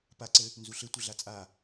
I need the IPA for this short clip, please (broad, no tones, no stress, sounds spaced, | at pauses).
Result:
p a ǀ ɘ | n z u ɬ ɘ tʷ ɘ ɮ a t͡sʼ a